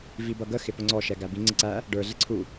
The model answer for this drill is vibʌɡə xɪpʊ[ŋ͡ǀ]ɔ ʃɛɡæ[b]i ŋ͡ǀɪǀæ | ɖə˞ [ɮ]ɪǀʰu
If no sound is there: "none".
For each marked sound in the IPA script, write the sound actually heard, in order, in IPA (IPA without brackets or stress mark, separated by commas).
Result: ŋ͡ǀ, b, ɮ